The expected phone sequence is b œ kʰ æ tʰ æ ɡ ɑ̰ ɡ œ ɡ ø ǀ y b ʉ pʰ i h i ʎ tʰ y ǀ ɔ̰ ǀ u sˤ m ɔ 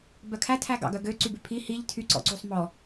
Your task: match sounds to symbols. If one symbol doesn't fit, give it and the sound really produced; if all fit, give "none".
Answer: none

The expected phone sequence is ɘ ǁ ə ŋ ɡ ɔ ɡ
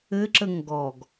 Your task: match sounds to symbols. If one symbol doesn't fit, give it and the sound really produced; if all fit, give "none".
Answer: none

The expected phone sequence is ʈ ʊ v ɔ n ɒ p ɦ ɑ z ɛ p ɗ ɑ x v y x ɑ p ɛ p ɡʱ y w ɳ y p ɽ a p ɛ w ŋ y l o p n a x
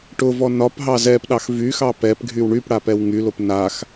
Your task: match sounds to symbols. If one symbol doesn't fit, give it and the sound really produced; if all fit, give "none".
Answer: none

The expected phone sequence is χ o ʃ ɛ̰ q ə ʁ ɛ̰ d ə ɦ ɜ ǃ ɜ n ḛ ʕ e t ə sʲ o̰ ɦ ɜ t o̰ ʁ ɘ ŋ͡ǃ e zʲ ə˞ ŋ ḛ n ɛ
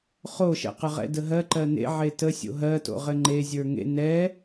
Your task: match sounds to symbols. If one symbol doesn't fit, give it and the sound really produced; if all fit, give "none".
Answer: none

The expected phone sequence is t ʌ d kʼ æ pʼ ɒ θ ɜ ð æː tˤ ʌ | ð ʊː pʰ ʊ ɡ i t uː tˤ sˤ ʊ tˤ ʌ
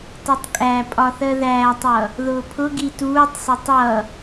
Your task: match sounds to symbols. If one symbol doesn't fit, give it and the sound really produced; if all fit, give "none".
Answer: d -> tˤ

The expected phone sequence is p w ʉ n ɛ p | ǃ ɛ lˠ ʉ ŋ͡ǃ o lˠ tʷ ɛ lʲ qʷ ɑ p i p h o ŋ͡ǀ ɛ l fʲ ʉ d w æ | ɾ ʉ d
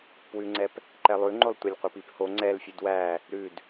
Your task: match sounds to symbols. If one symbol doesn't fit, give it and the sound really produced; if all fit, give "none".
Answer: n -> ŋ͡ǀ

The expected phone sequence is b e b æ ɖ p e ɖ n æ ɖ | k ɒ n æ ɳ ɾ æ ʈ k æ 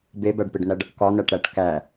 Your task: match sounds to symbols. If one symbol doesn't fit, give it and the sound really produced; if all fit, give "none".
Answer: ɳ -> ʈ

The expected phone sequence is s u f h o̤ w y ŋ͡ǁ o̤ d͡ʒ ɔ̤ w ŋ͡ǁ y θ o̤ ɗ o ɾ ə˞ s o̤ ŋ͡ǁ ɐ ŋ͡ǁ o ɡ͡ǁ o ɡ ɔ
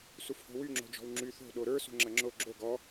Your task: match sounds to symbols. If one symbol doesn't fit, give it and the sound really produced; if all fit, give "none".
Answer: none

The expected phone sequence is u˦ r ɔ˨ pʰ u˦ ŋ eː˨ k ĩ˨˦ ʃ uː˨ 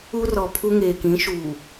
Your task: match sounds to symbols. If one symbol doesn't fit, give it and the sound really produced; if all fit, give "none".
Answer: none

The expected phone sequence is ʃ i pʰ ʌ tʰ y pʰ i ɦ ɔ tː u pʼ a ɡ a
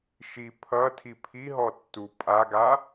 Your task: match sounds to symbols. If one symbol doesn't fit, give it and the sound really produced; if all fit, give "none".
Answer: y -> i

